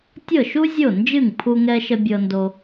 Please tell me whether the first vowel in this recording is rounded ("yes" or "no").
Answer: no